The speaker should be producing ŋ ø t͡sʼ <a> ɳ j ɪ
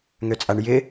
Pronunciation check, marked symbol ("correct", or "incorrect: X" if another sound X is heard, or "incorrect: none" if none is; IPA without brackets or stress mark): correct